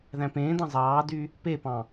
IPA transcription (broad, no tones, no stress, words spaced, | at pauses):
ðæ̃pẽːdɑ̃ zˤɑːdy | pepɑ̃